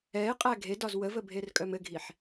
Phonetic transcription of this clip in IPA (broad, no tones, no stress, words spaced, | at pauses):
ɛɪ̯qʼæ ɡʱedɒz wəvəbʱerkʼœm ɘɡʱiħ